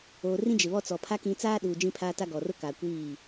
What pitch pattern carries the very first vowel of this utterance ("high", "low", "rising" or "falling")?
low